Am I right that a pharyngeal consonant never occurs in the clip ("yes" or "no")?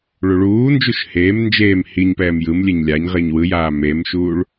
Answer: yes